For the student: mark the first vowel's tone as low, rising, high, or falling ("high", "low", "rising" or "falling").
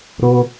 high